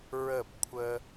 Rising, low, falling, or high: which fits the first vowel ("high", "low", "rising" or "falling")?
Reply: falling